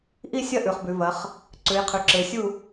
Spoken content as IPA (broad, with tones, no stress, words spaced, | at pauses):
ʔi˥˨sʲɐ˥˨ ʔʉ˩˧χbʉ˩˧ vɐ˩˧χ | ǀʉ˩˧jqʰʉ˩˧ǁe˩˧sʲu˥˨